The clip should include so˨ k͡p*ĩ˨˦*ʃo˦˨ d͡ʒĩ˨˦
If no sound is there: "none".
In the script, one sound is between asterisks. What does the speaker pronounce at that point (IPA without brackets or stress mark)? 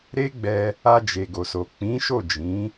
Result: ĩ˨˦